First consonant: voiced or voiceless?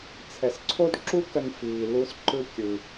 voiceless